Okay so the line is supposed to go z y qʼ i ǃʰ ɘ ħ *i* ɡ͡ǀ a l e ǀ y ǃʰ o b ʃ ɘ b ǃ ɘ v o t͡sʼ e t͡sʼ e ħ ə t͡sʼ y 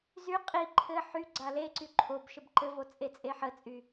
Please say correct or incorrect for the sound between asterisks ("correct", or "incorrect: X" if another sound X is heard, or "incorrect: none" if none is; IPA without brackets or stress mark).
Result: incorrect: y